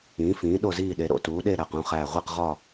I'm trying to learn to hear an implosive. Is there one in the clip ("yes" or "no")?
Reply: yes